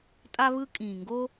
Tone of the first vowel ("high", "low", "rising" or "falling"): high